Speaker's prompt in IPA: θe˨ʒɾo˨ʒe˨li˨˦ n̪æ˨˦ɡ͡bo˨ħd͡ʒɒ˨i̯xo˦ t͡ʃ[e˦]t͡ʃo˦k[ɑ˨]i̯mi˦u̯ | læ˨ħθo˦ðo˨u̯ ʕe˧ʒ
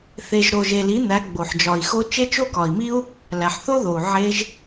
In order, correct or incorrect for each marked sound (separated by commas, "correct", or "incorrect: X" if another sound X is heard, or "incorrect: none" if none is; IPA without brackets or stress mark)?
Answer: correct, incorrect: ɒ˨